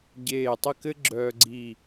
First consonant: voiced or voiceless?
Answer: voiced